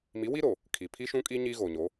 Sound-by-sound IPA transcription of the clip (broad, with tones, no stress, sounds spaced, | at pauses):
m i˨˦ w i˦ ɾ o˨ | kʰ i˨ pʰ i˦ ʃ ũ˦ kʼ i˦ ɲ i˦ ɣ o˨ ɲ o˨˦